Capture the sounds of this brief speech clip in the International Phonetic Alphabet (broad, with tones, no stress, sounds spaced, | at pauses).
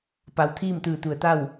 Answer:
p a˩˧ w t̪ʰ iː˥˨ m t̪ ɯː˧˩ t̪ u˩ ə̯ t̪ a˥˨ w